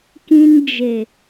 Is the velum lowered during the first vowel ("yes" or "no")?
yes